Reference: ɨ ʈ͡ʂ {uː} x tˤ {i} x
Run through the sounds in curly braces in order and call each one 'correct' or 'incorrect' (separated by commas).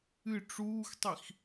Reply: correct, correct